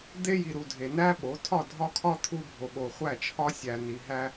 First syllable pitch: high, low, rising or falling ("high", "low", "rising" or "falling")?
high